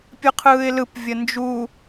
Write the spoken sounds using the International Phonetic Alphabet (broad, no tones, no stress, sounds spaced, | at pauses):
pʲ ɯ qʰ ɯː ɪ̯ l ɯ p vʲ ə n d͡ʒ u